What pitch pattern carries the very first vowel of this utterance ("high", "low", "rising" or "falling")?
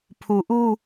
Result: low